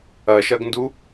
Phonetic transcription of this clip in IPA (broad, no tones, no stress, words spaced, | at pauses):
ɐʃɐɡndu